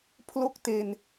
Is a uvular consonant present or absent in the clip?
absent